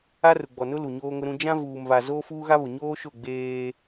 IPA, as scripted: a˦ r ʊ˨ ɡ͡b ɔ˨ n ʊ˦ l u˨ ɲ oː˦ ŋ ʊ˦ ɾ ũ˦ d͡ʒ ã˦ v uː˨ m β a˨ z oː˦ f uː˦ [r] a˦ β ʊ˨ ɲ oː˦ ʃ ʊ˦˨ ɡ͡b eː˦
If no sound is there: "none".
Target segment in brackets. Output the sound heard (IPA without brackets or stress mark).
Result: ɣ